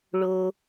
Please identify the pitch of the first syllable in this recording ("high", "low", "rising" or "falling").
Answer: low